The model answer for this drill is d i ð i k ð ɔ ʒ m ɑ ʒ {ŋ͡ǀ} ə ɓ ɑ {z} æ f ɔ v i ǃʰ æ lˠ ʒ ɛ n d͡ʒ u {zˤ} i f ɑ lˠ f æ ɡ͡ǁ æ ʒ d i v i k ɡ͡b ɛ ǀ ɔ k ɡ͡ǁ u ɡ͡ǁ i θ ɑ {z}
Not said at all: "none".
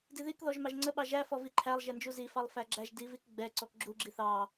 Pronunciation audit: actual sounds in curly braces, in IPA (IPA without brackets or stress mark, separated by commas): ŋ͡ǀ, ʒ, z, none